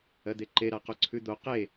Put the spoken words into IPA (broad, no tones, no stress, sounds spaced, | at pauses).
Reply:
ɜ d̪ e ǃ e ɾ a q o ǀʰ ʉ d̪ o q e